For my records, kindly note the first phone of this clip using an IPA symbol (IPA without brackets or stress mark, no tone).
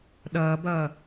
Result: ɗ